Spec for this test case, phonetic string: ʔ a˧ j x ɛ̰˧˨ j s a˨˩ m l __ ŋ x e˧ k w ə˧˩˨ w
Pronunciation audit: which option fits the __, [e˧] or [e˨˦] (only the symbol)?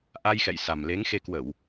e˨˦